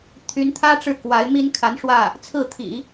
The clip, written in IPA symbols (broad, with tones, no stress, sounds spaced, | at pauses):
t̪ʰ y˧˥ n t̪ʰ ä˥ ʈ͡ʂ ɻ̩˥˩ k w a˧˥ ɪ̯ m i˥ n kʰ a˧˥ n ʂ w ä˥˩ | t͡sʰ ɹ̩˥˩ t̪ʰ ḭ˨˩˦